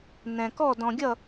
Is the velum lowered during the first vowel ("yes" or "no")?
yes